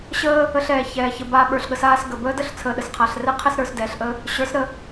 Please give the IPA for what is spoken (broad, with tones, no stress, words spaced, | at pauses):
ɕəː˦ | ə˧ɬ ɛː˨çɛː˨ çə˨baː˧ ɓə˞˨ɬɠə˧s aː˦sɡə˨ bəː˦də˦ɬ t͡sʰəː˨ɗə˨sqʰa˨ɬrɛ˦ qʰɛ˦sɾə˞˧sdɛː˨ɬʔə˦ | ɕə˞˨˦sɾə˦˨